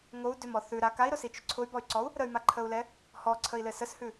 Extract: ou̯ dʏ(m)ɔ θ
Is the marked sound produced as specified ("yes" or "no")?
yes